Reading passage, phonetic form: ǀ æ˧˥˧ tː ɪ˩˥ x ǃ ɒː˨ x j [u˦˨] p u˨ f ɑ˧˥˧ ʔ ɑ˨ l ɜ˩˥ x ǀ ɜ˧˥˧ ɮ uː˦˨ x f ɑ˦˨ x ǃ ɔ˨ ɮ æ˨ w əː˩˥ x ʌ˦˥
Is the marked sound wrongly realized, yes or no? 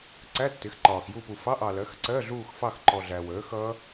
no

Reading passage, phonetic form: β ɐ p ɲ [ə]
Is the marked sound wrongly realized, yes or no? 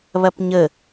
no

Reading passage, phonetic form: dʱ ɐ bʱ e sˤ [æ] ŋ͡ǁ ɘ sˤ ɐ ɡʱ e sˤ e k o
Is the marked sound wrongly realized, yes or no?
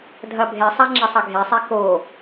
yes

